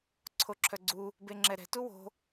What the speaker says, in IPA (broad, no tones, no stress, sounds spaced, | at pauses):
ǀʰ o ǁʰ œ ɡ͡ǀ u | b e ŋ͡ǁ ɛ ɾ ɛ̤ t u w o̤